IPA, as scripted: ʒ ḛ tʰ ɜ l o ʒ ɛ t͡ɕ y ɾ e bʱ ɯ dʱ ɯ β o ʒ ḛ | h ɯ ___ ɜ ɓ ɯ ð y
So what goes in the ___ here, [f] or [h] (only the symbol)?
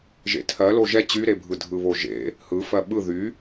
f